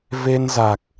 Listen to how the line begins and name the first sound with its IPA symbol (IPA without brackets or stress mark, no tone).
v